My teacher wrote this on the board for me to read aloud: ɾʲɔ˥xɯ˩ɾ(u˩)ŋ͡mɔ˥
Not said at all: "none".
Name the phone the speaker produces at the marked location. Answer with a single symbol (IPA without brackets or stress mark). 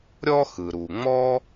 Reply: u˩